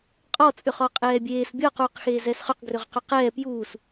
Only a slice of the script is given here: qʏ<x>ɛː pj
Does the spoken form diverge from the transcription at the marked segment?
yes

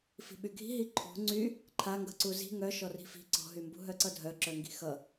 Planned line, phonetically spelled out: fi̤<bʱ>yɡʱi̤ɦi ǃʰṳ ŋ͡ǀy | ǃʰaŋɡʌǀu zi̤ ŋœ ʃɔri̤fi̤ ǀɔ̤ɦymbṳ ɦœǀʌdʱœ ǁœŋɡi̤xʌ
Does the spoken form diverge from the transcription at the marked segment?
yes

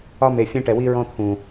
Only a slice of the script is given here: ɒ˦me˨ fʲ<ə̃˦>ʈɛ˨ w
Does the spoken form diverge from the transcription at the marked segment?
yes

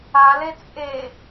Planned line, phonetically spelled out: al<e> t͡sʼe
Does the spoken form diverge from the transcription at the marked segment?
no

